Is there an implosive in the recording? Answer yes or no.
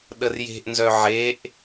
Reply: yes